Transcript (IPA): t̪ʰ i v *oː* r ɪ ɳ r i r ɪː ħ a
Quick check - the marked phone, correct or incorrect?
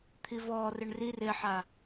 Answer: incorrect